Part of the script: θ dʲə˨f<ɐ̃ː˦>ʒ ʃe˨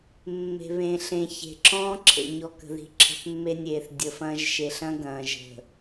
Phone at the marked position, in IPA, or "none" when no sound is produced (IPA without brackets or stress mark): ɐ̃ː˦